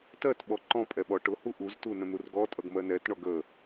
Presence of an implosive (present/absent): present